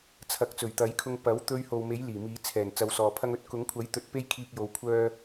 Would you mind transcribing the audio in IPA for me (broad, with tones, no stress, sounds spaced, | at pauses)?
t͡sʰ ɐ˨˥ k̚ t͡s ɵ˨˩ ɥ t̪ ɐ˨˥ j kʰ ʊ˧ ŋ p ɐ˨˥ w t̪ ɵ˧ ɥ h o˨ w m e˨˥ j l iː˨˩ m iː˨˧ t͡sʰ ɛː˨˩ n t͡s ɐ˧ w s ɔː˨ pʰ ɐ˥ ŋ ɵ˥ t̚ k ʊ˨˥ ŋ kʷʰ ɐ˨˥ j t̪ ɵ˨˥ t̚ p e˥ j kʰ iː˧ k̚ j o˨˧ w kʷʰ œː˥